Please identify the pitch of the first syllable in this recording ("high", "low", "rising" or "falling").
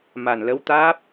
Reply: low